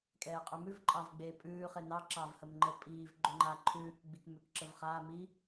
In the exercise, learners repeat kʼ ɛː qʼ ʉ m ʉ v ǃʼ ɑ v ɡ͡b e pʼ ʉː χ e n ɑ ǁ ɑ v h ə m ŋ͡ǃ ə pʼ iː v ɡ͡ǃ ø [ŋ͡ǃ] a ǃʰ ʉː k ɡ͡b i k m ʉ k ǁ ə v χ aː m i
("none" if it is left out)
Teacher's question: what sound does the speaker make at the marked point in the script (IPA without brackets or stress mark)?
ŋ͡ǃ